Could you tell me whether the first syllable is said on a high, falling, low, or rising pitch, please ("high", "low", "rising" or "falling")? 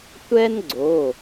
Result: high